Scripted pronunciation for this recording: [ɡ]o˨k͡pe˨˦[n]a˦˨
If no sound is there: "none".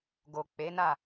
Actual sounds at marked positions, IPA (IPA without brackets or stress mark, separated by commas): ɡ, n